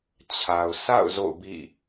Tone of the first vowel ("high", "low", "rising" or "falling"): low